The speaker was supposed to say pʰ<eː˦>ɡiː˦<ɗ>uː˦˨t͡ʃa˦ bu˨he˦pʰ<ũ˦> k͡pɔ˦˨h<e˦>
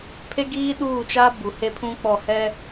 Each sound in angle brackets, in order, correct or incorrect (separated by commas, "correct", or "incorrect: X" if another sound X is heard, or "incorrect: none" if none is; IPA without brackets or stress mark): incorrect: e˦, correct, correct, incorrect: ɛ˦